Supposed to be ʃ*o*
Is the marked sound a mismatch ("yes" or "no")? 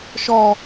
yes